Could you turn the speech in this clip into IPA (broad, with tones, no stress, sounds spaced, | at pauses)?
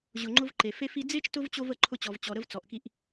ʑ ʊ˨ ŋ͡ǃ ʊ˦ v ǃ e˩ f e˦ f i˦ d͡z e˦ t͡ʃ t ʊ˥ v t͡ɕ o˦ v ə˨ ǃʰ ʊ˦ t͡ɕ ɔ˩ v t͡ɕ ɔ˩ ɾ ə˦ v t͡s ɔ˩ ʔ k i˦ ʔ